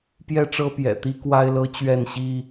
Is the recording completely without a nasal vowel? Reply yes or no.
yes